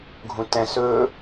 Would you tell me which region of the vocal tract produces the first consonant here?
velum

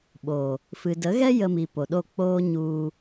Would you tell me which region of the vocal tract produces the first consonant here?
lips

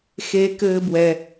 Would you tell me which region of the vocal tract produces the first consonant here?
velum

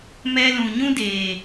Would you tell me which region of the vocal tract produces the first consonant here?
lips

